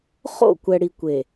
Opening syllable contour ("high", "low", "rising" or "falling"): falling